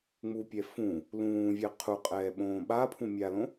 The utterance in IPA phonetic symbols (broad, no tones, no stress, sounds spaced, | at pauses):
ŋ͡m u pʲ ɛ f ũ | l ũː vʲ ɛ qʰ u qʼ ɛː ɓ õː ɓ a pʰ ũ mʲ a l õ